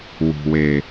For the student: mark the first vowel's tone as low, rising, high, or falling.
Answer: low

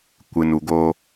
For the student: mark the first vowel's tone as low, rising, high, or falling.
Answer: low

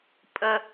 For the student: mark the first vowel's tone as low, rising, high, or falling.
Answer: high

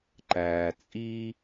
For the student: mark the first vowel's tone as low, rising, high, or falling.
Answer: low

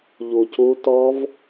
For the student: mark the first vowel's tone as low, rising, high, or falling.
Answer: low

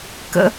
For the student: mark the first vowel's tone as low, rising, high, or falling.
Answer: high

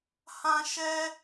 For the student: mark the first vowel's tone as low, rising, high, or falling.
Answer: high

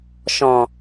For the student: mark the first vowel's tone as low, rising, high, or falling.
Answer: low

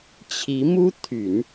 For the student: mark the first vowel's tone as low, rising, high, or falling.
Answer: rising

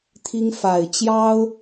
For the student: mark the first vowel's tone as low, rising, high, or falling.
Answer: high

